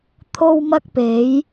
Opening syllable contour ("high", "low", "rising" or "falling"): high